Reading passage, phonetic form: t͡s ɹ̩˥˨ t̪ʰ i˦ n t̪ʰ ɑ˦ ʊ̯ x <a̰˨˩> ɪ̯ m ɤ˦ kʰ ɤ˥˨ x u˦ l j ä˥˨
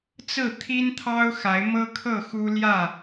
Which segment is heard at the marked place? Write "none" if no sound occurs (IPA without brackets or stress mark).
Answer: a˨˦